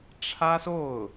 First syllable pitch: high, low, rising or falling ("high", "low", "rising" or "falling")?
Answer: high